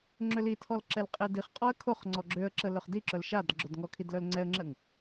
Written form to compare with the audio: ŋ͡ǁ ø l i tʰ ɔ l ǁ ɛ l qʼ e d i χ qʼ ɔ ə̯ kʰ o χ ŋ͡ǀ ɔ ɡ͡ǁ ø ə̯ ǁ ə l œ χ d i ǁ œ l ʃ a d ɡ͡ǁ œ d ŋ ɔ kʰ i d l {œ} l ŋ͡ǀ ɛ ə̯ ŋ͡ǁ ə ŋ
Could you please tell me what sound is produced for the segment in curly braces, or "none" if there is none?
œ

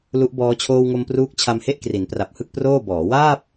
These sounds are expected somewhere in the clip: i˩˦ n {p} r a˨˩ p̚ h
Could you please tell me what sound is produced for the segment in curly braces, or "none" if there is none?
p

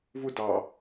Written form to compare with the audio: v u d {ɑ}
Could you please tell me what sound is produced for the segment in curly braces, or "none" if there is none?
ɑ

